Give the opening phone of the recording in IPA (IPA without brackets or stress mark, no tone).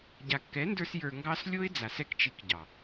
ɟ